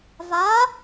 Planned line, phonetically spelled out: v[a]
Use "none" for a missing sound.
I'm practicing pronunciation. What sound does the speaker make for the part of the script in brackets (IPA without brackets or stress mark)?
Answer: a